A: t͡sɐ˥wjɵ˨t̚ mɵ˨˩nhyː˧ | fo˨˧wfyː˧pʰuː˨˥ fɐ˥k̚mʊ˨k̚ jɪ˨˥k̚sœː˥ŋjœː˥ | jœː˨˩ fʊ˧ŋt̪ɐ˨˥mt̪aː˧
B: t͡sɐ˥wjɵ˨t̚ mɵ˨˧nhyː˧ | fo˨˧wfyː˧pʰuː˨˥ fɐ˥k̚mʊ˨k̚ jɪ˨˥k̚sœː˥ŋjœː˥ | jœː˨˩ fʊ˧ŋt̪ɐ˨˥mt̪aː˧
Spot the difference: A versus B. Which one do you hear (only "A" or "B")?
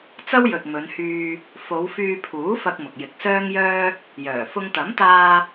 B